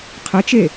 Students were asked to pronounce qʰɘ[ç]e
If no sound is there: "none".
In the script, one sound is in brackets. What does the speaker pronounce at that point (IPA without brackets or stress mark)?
t͡ʃ